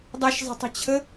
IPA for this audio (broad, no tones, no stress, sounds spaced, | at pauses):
dˤ ɛ ʃ zˤ ə̤ tˤ ə̤ t͡ɕʰ ə